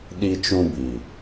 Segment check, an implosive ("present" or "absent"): present